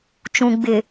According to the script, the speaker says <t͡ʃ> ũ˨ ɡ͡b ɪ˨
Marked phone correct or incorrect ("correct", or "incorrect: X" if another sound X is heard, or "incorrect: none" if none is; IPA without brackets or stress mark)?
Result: correct